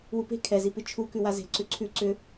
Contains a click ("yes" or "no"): yes